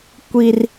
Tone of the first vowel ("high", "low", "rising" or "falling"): high